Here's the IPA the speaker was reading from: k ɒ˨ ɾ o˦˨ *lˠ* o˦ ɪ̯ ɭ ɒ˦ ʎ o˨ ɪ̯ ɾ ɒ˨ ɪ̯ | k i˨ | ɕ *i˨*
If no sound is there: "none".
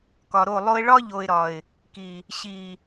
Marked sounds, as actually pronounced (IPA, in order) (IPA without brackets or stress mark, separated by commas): lˠ, i˨